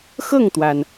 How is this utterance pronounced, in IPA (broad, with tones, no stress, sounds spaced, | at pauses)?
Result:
x ɤ˥˩ ŋ t̪ w a˩ n